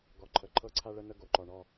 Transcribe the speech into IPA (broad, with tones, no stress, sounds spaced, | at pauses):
ɡ ɔ˨ ǃʰ ə˨ ǃʰ ɤ˦ ǀʰ a˦ ɭ ə˦ n ə˦ ɡ o˨ ǃ ɔ˨ ɳ ɔ˦